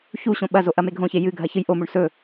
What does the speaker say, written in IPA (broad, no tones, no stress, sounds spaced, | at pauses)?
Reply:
ç u ɕ õ ɓ ɐ z o ʔ ɐ m e ɡʱ õ ç e j ɨ ɡʱ ɐ ç ɨ j ʔ o m u ɳ s ɵ